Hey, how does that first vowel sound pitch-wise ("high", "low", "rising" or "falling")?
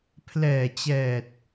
low